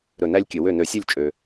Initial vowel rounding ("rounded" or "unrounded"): rounded